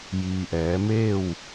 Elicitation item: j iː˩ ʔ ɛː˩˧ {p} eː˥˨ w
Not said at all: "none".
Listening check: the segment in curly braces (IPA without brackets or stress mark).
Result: m